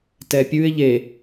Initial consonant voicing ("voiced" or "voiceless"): voiceless